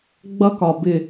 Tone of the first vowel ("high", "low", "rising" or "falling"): high